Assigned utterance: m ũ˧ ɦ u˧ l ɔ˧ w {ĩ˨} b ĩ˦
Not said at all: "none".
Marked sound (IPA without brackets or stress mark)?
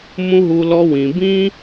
ĩ˨